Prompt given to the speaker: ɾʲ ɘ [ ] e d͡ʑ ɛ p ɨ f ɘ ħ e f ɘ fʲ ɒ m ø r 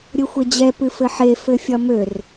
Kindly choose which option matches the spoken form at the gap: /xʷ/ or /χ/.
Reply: xʷ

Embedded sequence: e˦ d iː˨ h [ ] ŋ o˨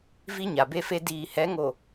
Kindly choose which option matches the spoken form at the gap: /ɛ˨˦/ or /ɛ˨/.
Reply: ɛ˨˦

